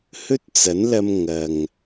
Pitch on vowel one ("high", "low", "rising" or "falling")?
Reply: high